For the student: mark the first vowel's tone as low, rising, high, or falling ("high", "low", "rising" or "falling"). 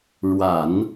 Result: low